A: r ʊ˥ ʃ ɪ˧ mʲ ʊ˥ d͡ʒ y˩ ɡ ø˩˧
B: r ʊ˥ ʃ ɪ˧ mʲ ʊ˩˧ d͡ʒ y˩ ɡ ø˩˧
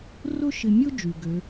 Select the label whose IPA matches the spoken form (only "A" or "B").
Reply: A